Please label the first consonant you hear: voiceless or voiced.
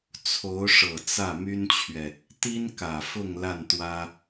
voiceless